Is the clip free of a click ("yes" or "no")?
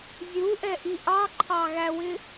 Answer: no